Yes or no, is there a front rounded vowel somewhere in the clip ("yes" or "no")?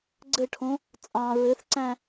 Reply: no